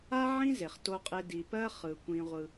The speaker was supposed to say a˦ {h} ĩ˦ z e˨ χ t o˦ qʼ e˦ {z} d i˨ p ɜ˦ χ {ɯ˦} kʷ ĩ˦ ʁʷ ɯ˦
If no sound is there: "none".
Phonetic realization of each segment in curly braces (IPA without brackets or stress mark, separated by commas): ʕ, none, ɯ˨